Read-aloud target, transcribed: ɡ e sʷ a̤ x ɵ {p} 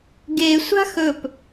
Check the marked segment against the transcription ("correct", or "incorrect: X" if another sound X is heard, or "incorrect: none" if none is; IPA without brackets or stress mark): correct